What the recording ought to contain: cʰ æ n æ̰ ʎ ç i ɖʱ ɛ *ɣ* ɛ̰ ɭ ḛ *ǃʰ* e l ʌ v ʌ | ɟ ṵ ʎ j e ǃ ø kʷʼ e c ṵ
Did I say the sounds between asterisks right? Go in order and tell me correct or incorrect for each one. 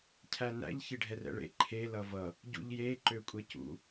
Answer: incorrect: r, correct

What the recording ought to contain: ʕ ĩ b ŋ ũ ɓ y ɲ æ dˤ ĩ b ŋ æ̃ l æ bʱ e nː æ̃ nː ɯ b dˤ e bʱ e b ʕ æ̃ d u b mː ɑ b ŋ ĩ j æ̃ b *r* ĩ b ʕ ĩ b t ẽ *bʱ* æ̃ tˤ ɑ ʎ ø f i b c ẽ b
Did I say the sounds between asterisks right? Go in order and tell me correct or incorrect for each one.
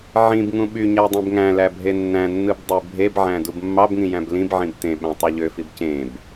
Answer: incorrect: l, incorrect: ɓ

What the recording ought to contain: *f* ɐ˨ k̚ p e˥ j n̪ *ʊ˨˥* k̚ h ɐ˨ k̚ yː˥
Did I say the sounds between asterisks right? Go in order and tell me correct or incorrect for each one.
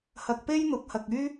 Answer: incorrect: h, correct

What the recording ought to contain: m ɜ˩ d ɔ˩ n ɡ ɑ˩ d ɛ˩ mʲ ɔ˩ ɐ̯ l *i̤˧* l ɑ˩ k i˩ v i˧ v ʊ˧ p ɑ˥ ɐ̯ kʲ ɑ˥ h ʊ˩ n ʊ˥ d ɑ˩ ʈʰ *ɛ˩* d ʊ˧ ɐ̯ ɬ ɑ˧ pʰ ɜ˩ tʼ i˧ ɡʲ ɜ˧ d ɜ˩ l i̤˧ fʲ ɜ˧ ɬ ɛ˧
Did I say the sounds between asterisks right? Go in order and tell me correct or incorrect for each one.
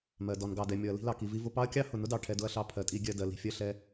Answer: correct, incorrect: ɛ˧

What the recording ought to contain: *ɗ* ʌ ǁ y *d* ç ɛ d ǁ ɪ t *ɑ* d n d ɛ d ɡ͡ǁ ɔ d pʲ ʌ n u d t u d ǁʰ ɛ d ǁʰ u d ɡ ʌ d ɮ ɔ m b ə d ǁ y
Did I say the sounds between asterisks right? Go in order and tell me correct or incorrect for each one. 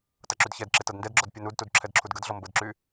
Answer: incorrect: t, correct, incorrect: ʌ

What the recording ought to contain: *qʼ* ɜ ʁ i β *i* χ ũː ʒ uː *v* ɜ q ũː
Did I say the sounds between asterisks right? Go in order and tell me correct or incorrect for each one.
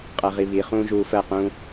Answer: correct, correct, incorrect: f

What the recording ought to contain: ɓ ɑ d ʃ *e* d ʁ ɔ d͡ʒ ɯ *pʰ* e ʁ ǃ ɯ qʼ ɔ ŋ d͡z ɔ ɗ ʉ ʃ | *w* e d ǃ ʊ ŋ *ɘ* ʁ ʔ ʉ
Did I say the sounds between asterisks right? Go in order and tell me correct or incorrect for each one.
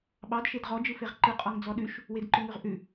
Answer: correct, incorrect: f, correct, incorrect: ʉ

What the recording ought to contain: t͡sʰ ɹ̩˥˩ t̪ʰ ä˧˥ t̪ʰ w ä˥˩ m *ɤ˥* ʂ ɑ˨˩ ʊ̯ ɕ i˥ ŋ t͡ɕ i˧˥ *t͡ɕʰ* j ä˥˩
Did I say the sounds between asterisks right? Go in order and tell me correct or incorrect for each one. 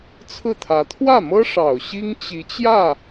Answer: correct, incorrect: t͡ɕ

